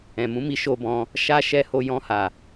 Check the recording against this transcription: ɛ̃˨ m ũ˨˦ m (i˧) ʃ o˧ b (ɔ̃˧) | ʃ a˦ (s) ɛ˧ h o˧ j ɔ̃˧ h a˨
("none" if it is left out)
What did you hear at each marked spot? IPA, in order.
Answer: i˧, ɔ̃˧, ʃ

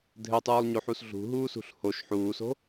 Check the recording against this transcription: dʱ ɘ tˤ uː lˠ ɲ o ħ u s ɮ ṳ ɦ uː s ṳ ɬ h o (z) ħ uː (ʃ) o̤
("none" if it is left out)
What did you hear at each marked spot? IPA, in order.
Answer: ʃ, s

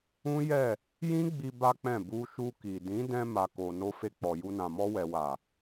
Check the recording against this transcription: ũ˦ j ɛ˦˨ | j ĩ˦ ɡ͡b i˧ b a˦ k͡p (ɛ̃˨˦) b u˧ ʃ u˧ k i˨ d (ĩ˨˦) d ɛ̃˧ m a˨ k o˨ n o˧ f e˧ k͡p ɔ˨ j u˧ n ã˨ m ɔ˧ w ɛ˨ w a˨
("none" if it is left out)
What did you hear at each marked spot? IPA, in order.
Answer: ɛ̃˦˨, ĩ˨˦

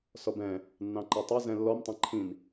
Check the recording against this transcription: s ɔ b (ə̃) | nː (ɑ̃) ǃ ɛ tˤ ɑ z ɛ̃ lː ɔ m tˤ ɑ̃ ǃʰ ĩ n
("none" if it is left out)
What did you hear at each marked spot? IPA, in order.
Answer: ɛ̃, ɑ̃

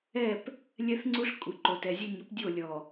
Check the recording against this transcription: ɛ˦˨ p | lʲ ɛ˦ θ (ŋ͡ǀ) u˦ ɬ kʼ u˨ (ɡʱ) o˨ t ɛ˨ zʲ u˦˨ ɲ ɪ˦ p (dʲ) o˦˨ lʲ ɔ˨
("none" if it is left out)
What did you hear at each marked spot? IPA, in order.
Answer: ŋ͡ǀ, ǃ, dʲ

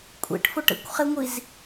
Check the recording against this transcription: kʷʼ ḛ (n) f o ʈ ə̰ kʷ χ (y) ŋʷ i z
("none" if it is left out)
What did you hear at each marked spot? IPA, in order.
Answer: ʈ, e

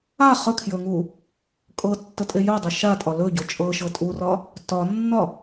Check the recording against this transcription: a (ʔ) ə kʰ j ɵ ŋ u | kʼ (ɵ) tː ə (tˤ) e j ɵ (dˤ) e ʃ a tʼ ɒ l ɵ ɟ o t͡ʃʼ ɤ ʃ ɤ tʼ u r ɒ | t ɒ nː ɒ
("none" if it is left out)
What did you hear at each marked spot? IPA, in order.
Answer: χ, ɤ, tʼ, dˤ

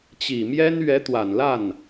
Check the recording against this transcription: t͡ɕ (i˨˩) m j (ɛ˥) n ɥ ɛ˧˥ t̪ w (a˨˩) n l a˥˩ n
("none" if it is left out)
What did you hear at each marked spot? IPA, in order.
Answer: i˨˩, ɛ˥, a˨˩

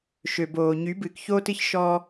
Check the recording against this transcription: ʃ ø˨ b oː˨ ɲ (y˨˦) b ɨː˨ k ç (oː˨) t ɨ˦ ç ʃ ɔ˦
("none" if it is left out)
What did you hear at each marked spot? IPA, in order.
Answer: y˨˦, oː˦

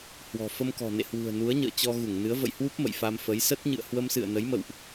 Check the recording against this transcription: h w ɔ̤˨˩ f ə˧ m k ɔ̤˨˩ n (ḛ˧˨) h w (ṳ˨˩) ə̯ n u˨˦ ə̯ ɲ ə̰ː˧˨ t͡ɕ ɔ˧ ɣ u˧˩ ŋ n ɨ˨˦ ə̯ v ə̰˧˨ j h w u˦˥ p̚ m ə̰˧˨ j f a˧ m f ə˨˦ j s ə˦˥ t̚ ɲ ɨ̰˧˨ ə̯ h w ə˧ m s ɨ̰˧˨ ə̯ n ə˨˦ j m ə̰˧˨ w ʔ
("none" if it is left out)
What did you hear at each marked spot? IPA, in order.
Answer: ḛ˧˨, ṳ˨˩

